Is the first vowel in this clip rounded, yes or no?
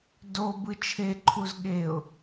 yes